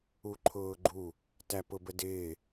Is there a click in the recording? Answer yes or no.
yes